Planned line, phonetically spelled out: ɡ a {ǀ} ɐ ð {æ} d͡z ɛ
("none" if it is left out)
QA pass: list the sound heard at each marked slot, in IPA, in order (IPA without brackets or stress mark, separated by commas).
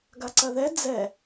ǀ, ɛ